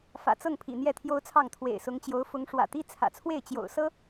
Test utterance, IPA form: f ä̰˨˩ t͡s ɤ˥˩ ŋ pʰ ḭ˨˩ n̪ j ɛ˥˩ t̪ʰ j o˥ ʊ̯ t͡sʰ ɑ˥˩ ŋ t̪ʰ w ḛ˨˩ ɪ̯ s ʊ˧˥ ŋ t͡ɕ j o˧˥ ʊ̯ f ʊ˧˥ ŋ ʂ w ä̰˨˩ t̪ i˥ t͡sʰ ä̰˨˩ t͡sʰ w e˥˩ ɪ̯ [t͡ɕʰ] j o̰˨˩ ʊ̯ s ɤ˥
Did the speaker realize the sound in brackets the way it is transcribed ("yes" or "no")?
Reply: no